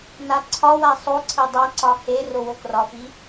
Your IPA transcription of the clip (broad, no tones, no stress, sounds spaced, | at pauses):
n a ǀʰ ɒ w a sˤ o ǀʰ e dˤ a ǀ ɒ h e r o w o k r ɒ f i